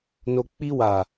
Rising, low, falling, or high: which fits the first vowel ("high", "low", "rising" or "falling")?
low